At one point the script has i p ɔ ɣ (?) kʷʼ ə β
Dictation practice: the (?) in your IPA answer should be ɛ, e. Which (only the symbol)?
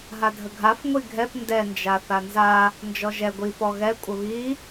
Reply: ɛ